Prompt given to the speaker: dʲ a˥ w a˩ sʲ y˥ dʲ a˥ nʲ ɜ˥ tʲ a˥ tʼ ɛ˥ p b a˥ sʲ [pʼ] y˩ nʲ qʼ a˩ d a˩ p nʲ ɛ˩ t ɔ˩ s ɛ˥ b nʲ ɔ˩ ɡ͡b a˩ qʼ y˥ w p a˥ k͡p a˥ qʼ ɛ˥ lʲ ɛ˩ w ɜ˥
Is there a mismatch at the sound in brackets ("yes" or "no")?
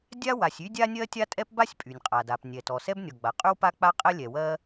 no